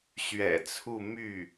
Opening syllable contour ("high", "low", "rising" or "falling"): low